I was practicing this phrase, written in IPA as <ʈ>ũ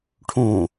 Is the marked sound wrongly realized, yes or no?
yes